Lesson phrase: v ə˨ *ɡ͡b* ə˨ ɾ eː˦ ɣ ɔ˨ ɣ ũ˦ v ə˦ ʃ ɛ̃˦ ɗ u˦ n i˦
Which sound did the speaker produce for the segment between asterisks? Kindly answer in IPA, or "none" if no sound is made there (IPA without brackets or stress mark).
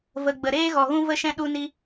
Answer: ɡ͡b